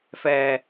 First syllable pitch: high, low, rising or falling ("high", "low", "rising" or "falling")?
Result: low